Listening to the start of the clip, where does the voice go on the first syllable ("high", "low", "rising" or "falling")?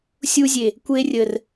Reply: high